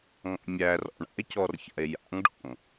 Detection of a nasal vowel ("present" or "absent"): absent